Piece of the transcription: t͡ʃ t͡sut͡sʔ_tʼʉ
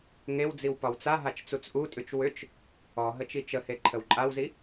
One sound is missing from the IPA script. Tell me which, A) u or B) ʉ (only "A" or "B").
A